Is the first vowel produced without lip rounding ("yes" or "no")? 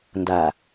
yes